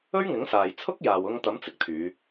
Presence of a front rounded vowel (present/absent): present